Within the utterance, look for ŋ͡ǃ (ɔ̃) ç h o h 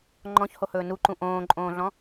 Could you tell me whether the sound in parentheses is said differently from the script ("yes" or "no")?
no